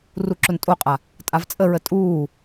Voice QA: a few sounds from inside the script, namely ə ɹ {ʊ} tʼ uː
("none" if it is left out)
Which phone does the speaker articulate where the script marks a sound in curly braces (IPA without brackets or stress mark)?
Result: ə